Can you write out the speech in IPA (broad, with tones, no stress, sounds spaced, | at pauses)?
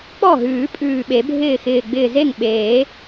k͡p ɔ˥˩ ɦ ʉː˨˩˦ pʼ ʉː˧˩ ɓ e˨˩˦ bʱ ɪː˥˩ x ɪː˧˩ ɡ͡b ɪː˧˩ z e˥˩ ŋ ɓ eː˨˩˦